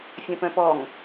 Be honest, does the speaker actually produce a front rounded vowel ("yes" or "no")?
yes